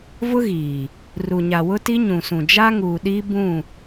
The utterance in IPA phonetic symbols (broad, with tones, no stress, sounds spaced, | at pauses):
v ʊ˦ ɣ iː˨ | r u˨ ɲ a˨ w ʊ˦ t i˦ ɲ ũ˨ s ũ˨ d͡ʒ a˦ ŋ uː˨ ɗ iː˦ b ũ˦˨